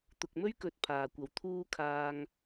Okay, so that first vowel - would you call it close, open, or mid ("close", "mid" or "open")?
close